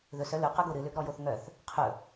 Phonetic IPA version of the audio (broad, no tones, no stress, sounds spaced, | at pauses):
ð ɵ s œ l ɵ q ɵ ɡ o ɾ ɨ l ø ɡ ɾ ɔ j o θ ŋ œ θ | qʰ ɵ